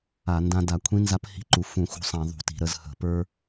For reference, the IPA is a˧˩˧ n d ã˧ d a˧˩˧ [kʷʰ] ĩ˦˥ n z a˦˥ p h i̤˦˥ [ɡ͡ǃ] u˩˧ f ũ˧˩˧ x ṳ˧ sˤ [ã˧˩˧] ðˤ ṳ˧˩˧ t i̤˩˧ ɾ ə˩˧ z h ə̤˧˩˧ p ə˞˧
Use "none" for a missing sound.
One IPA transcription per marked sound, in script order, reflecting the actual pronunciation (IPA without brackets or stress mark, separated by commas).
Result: kʷʰ, ǃ, ã˧˩˧